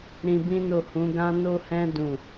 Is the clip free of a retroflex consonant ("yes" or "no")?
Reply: yes